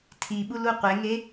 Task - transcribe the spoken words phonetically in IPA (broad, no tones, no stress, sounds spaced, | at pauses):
tʰ i ɓ u l u qʷ e ŋ e